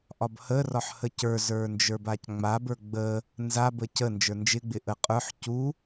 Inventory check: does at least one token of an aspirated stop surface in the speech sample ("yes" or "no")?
no